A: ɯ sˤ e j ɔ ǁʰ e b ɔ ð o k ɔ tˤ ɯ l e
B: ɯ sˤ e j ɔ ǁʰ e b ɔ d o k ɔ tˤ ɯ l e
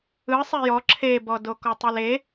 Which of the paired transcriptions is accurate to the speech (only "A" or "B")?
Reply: B